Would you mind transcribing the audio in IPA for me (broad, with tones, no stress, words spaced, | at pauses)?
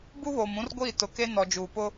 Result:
bu˦βoː˨m ũ˦rɡʷiː˦˨tʊ˨ke˦ nɔ˨ d͡ʒuː˨pʊ˦